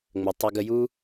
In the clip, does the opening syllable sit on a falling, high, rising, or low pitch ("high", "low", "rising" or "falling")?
low